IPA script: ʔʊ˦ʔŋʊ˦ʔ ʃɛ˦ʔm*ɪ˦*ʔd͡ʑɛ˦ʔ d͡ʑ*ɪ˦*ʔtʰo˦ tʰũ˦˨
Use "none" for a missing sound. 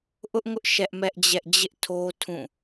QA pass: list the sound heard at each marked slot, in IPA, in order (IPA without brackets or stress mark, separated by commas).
ɛ˦, ɪ˦